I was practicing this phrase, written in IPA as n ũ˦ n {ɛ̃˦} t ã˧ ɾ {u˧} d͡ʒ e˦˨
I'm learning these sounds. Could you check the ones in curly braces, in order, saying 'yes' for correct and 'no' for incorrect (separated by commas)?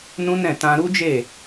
no, no